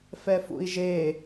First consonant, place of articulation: labial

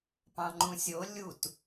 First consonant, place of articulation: labial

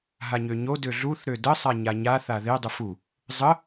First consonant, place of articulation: glottal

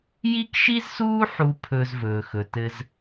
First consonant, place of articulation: palatal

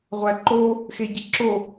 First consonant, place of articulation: uvular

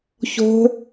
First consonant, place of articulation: palatal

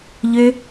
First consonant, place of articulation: palatal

